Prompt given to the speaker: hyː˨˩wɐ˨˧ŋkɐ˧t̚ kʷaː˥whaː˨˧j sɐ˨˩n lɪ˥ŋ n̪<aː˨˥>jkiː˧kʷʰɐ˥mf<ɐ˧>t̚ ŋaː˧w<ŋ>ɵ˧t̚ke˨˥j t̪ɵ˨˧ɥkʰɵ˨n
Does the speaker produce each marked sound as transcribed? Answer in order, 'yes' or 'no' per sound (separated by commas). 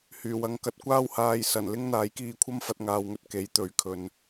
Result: yes, yes, yes